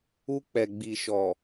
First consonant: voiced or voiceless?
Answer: voiceless